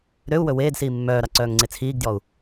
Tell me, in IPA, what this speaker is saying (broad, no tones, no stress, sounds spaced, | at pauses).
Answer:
ɾ ø u̯ w ɵ w eː d s iː mː œː ɾ ɑ ǀ œː ŋ ŋ͡ǀ e t͡sʰ iː ɡ d j ɔ u̯